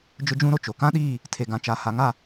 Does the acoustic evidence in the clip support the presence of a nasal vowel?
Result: yes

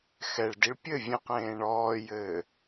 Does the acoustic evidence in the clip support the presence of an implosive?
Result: no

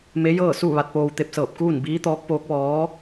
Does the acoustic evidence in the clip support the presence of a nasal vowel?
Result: no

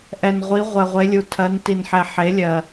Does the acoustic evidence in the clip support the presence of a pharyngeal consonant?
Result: yes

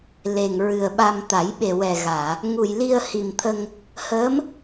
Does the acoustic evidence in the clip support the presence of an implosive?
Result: yes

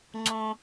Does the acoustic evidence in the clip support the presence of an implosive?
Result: no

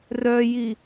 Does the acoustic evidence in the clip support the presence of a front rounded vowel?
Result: yes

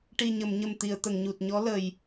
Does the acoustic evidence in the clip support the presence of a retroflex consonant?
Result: yes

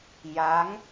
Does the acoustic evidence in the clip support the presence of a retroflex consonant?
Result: no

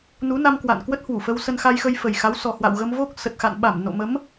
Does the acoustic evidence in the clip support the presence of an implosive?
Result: yes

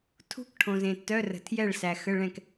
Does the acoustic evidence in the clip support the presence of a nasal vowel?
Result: yes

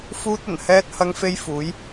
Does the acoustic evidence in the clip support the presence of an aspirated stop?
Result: no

